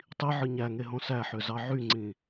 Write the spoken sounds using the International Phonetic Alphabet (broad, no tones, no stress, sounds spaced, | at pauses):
tˤ i ʕ ɯ ɲ æ ŋ e ɦ õ s æ ħ ø z ɑ ʕ y ŋ͡ǀ ĩ